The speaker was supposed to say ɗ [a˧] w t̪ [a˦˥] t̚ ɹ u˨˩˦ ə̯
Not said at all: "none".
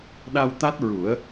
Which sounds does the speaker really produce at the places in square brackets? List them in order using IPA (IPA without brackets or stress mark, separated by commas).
a˧, a˦˥